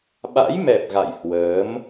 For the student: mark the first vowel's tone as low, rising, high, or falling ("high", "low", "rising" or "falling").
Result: rising